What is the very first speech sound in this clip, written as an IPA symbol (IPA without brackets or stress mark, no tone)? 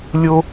lʲ